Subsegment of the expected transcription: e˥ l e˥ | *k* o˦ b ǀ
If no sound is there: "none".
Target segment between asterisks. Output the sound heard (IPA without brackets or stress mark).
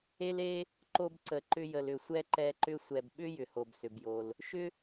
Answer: ǃ